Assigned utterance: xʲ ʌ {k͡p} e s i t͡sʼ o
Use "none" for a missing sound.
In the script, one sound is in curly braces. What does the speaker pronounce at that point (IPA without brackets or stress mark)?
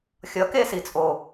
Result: k